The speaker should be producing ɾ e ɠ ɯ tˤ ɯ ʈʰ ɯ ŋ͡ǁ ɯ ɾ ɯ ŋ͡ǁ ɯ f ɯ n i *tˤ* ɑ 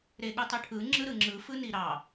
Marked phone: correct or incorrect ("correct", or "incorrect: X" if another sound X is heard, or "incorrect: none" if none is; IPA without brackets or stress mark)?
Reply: incorrect: ɾ